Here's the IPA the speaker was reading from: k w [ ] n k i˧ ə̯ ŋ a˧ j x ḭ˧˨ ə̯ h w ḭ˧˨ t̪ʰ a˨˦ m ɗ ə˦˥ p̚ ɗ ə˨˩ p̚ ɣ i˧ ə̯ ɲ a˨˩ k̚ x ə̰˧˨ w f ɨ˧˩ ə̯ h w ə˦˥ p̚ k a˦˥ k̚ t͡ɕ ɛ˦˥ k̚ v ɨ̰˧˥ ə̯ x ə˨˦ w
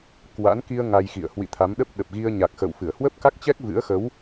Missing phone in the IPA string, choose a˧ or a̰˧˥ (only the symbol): a̰˧˥